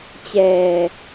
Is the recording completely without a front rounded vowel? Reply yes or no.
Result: yes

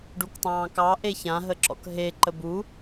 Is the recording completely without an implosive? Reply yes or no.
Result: yes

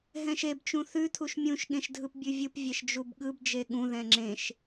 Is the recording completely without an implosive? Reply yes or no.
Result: no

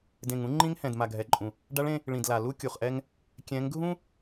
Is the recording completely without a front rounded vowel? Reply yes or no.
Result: yes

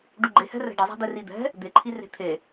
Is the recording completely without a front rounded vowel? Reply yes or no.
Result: yes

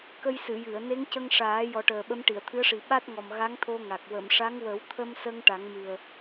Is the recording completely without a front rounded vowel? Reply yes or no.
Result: yes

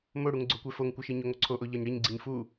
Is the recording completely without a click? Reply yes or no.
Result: no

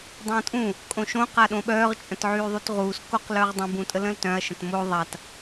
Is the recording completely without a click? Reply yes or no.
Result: yes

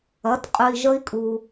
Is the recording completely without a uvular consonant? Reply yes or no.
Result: no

